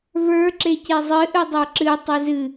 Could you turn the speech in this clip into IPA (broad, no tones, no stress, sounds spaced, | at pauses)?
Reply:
v ə˞ ǁ e c e zˤ ɨ ʔ ɨ dˤ ə˞ ǁ ɨ tˤ ɨ z ɨ